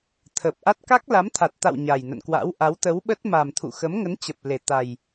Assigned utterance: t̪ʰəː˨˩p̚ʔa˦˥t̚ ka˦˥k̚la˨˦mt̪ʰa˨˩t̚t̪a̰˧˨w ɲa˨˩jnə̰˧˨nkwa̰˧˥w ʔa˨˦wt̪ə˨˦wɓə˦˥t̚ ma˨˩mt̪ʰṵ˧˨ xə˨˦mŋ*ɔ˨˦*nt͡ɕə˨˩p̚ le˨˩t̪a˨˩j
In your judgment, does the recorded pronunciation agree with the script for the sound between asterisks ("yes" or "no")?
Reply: no